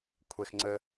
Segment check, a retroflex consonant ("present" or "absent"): absent